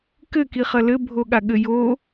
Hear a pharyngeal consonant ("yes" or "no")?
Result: no